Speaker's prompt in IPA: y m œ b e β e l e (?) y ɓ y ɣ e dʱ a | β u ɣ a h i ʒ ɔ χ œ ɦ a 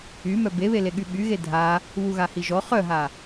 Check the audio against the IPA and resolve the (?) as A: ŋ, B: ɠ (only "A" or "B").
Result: B